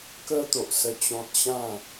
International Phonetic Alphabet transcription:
k ə˦ t̪ o˨ ʔ s ə˦ t͡ɕ ɔ̃˦ t̚ ɕ ã˥˧

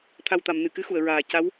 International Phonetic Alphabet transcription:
t̪ʰ a˨˩ w t̪ a˨˩˨ m n ɨ˨˩˨ k ɨ˧˥ x u˨˩˨ ə̯ ɹ aː˨˩ c a˧˥ w

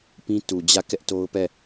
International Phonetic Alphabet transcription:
p ĩ˦ t u˨ d͡ʑ ä˦˨ k ɛ˦ ʔ t o˦ ʊ̯ p ɛ˦˨

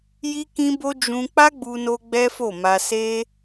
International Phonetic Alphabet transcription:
j i˦ k ĩ˦ b o˦ d͡ʒ ũ˧ k͡p a˦ ɡ͡b u˧ n o˧ ɡ͡b ɛ˦ f o˦˨ m a˧ s e˦

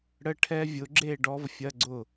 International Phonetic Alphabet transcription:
ɽ ə˧˥˧ ʈʰ ɛ˦˥ vʲ ʊ˨˥ ɡ͡ǁ e˥˨ ɖ ɔ˦˥ v fʲ ɐ˧˥˧ ɡ͡ǀ ʊ˥˨

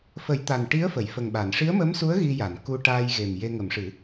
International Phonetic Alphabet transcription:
f ə˨˩˦ j t̪ a˨˩ n ʈ i˧˥ ə̯ f ə˨˩˨ j f ə˨˩ ŋ ɓ a˨˩˨ n ʂ i˧˥ ə̯ m ə˧˥ m s u˧˥ ə̯ ɣ i˧ j a˨˩˨ n k u˧ ʈ aː˧ j ɣ e˨˩ m j e˧ ŋ ə˨˩˦ m ʂ ɨ˨˩˦

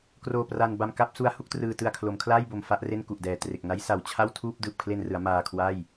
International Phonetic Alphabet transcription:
k r oː˧ p r a˧ n b a˧ m k a˥˩ p̚ s u˦˥ a̯ h u˥˩ k̚ t r ɯː˧ t ɯ˧ a̯ kʰ l o˩˦ m kʰ l a˥˩ j b o˨˩ m f a˥˩ ʔ r e˥˩ n k u˨˩ ʔ d ɛː˨˩ t r e˨˩ k̚ n a˦˥ j s a˨˩ w t͡ɕʰ a˥˩ w tʰ uː˥˩ p̚ d ɯː˨˩ p̚ kʰ l e˧ n r ɯ˩˦ a̯ m aː˧ kʰ w a˥˩ j

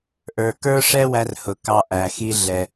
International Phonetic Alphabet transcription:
ʔ ə˞˨ k ə˞˦ ʂ ɛ˦ w æ˥ r h ʊ˨ k ɑ˦ ʔ æ˨ x i˥ ɮ ɛ˦

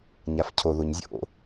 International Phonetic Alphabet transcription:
ɲ a f cʰ o ð o ɲ zʲ o̰

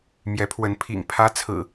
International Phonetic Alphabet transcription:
m j ɛ˨˦ pʰ w ə˨˦ n pʰ ḭ˨˩ ŋ pʰ ä˦ t͡sʰ ɹ̩˨˩

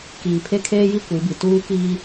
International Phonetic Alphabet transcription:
k iː˨ pʰ e˦ kʰ eː˦ j i˦ kʷ i˨˦ b i˨ t uː˦ k iː˦

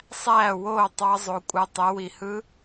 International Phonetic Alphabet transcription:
sˤ æː˥˩ w oː˥˩ tˤ ɑ˦˥ zˤ o˨˦ kʷʼ ɯ˨˦ tˤ e˨˦ w i˨ h ɯ˦˥

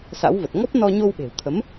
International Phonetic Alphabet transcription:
s a̰˧˥ w v ə˨˩ t̚ ŋ ɔ˦˥ p̚ n ɔ˧ ɲ o˧ w ɓ e̤˨˩ w t̪ʰ ə˨˦ m

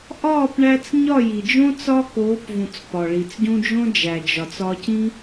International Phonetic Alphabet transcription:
ʔ ɒː˦˨ p ɳ æ˧ t͡s ɲ ɒ˦˨ j i˨ d͡ʒ õ˦ t͡s ɒ˦ k oː˨˦ p v ũ˨ t͡s p ɒ˨ ɭ i˨ t͡s ɟ ũ˦ d͡ʒ õ˦ d͡ʒ æ˨ d͡ʒ ɒ˨ t͡s ɒ˧ c ĩ˦

